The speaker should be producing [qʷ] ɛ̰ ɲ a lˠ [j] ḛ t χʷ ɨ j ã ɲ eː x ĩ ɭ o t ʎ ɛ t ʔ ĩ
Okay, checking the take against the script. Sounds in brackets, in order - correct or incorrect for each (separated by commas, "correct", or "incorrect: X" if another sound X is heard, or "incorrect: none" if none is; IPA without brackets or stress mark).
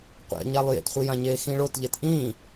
correct, correct